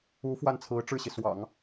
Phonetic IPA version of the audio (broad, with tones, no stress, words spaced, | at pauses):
u˧˥ fwa˥˩nt͡sʰɹ̩˧˥ ʈ͡ʂɻ̩˥˩ɕi˩ swɑ̰˨˩˦ŋ